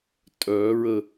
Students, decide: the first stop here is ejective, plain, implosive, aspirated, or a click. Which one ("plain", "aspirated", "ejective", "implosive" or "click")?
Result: ejective